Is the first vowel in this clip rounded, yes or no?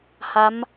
no